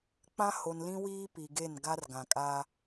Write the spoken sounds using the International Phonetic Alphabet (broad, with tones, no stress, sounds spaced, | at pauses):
k͡p ã˦ h o˨ n l ĩ˦ w iː˦ p i˨ ɡ e˦˨ n ɡ a˦ r ɡ ã˨ kʼ a˦